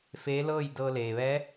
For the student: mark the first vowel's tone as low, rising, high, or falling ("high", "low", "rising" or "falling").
rising